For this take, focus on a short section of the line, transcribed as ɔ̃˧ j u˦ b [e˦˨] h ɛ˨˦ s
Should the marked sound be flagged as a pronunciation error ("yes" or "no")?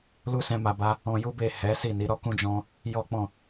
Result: no